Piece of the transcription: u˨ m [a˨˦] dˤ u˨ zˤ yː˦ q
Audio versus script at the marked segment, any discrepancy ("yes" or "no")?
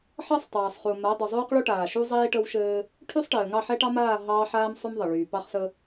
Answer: no